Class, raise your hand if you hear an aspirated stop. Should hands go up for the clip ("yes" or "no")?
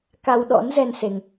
no